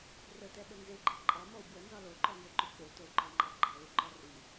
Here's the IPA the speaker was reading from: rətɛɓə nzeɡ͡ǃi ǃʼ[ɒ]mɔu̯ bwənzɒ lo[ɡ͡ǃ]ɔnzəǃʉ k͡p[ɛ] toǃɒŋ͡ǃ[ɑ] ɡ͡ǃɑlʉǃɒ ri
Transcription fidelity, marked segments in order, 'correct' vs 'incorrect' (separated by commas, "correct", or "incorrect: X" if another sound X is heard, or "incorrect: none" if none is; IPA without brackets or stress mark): incorrect: ɑ, incorrect: ǃ, incorrect: e, correct